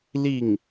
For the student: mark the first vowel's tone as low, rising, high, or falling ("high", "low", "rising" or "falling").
falling